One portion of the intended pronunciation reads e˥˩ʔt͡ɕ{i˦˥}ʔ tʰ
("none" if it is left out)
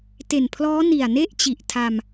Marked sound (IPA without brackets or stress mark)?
i˨˩